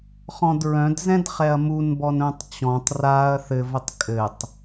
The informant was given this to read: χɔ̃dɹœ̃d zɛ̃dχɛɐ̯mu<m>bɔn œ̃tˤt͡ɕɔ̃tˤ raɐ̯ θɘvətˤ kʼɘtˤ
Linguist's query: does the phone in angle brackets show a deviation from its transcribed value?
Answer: yes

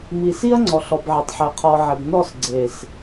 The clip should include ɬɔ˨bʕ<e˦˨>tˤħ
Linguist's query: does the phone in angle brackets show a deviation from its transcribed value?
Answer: yes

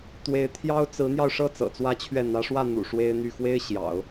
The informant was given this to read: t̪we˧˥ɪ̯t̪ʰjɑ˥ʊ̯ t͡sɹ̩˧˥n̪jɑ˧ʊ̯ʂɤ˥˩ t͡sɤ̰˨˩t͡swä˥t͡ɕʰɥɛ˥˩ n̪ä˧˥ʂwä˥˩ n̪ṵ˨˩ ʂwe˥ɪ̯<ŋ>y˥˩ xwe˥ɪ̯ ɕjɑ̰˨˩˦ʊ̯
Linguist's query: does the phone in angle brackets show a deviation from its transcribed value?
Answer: yes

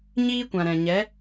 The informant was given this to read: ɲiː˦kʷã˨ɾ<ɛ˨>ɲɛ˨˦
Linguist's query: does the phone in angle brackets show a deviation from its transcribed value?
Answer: yes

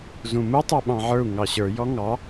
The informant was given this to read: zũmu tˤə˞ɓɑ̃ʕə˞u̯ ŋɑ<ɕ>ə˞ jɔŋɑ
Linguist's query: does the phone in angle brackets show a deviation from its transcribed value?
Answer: no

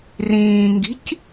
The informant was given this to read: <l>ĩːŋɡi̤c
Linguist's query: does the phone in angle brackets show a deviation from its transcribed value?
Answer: yes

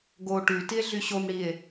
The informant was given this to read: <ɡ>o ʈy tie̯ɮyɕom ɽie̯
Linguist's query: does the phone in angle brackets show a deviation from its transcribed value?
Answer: no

